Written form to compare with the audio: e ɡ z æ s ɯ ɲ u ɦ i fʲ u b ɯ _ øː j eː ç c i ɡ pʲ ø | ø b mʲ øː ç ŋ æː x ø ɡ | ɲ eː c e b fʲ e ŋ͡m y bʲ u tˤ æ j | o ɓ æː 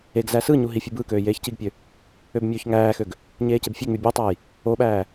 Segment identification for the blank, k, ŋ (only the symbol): k